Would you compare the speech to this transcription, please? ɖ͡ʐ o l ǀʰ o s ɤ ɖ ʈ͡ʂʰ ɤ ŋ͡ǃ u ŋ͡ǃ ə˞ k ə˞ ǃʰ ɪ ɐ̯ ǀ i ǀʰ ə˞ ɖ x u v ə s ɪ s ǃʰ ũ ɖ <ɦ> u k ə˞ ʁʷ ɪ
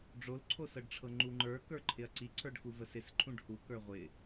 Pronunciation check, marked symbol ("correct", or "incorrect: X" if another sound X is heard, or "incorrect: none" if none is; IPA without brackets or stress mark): incorrect: h